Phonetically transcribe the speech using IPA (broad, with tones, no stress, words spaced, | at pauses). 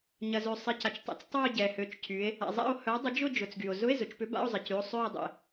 ɲɐ˩zø˩ sˤɪ˩˧˩ca˩t͡ʃtˤɛ̰˨˥t͡s tˤœ˦˨o̯ɟɛ˩hø˩˧˩t͡ʃcʰy˩˧e̯ | a̰˩ zˤa̰˦˨o̯hœ˨˥dˤʊ˨˥ d͡ʒʊ˦˨ d͡ʒʊ˩˧˩t͡sɡy˩o̯ zʊ˧˥˧e̯zʊ˩˧t͡ʃpʏ˨˥ ba̰˧˥˧o̯zˤɪ˩˧cy˩˧˩o̯ sˤø˦˨e̯dˤɛ̰˩